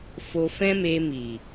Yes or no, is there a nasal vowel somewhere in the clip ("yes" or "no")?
yes